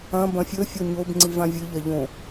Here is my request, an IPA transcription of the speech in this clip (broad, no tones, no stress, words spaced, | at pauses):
ɐ̃ bɐ̃fʲɵ fʲoɲob ŋ͡ǀivãvʲɨ ʎɐʎõ